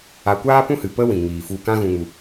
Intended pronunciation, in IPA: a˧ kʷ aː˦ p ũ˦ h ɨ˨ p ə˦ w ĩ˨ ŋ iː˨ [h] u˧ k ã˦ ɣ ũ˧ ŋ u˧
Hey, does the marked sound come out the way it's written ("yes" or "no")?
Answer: no